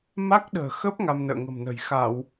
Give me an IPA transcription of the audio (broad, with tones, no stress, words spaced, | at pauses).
ma˦˥k̚ɗə̤ː˨˩xə˦˥p̚ ŋa˧mnə̰ː˧˨ŋə̤˨˩mnə̤˨˩j xa˧˩˨w